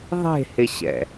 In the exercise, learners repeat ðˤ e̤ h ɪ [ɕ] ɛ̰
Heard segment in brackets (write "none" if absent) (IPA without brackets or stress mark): ɕ